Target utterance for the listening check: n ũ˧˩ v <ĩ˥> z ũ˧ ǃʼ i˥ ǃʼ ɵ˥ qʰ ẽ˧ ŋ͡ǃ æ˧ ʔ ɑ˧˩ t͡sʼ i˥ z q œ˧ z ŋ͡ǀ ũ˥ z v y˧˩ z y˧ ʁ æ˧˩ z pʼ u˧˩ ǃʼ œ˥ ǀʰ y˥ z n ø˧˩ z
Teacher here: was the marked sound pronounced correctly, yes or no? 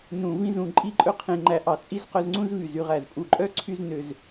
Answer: yes